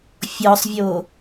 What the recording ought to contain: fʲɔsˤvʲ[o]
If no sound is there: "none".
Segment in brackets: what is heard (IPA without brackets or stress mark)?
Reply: o